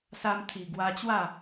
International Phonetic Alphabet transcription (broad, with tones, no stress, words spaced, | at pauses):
sa˧mt̪ʰi˨˩ ɡwa˧t͡ɕwa˥˧